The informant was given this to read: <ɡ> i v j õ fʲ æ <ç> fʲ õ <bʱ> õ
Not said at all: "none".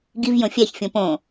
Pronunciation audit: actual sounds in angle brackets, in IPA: ɡ, ç, p

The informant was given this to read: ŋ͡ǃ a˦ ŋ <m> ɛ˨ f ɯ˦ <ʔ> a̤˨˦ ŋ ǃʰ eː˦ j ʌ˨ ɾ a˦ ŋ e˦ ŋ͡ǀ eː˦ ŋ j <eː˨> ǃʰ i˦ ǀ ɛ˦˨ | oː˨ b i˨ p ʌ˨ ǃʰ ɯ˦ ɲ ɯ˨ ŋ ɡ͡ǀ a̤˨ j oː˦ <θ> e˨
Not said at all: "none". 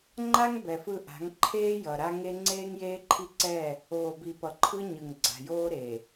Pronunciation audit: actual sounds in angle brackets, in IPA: b, ʔ, eː˦, ɾ

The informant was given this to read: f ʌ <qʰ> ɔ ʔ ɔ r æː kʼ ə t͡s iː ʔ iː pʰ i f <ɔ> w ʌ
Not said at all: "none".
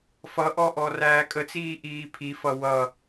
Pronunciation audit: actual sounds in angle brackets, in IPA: ʔ, ʌ

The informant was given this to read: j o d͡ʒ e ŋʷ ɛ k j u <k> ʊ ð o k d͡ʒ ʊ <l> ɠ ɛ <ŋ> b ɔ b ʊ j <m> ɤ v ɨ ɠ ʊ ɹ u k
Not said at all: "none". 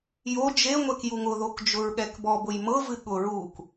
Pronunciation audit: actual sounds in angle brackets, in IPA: ŋ, ɹ, k, m

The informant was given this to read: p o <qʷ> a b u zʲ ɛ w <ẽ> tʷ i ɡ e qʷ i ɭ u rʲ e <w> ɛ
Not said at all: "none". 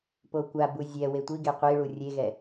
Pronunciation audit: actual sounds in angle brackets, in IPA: kʷ, e, ɣ

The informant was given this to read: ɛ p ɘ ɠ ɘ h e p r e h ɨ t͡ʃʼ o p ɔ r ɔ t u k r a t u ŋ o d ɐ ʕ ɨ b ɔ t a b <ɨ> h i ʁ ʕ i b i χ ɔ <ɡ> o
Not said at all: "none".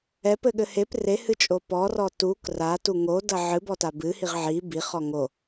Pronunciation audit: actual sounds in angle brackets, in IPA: ɨ, ŋ

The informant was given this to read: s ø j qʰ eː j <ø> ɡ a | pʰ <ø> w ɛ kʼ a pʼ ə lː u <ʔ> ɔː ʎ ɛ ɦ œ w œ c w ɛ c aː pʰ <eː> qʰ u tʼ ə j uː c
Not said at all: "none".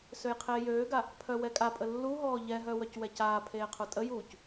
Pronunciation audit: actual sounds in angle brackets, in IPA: øː, œ, ɦ, eː

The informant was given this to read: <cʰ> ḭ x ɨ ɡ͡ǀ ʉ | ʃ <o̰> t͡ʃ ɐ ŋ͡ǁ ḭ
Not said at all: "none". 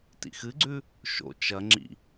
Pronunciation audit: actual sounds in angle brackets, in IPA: t, o̰

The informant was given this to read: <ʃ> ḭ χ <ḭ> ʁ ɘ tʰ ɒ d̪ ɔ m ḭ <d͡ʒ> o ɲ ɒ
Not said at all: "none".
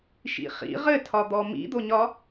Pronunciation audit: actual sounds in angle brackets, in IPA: ʃ, ḭ, d̪

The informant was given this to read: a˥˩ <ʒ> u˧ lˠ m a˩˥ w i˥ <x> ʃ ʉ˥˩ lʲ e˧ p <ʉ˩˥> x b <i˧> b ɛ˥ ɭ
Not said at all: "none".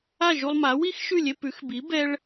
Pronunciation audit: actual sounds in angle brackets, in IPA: ʒ, x, ʉ˩˥, i˩˥

